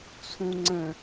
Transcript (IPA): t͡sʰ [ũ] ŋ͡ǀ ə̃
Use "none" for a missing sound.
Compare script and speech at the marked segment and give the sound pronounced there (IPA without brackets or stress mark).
ũ